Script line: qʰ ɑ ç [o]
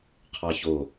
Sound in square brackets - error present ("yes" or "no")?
no